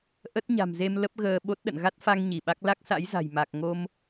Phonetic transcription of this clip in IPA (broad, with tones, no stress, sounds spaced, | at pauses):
ʔ ə˦˥ t̚ ɲ a̤˨˩ m z e˧ m l ə˦˥ p̚ ɣ əː˧ ɓ o˦˥ t̚ ɗ ə̰˧˨ n ɣ a˦˥ t̚ f a˧ ŋ ɲ i˧˩ ɓ a˦˥ k̚ l a˦˥ k̚ s a̰˧˥ j z a̤˨˩ j m a˨˩ k̚ ŋ o˧ m